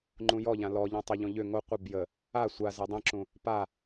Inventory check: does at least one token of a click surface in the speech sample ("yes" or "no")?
yes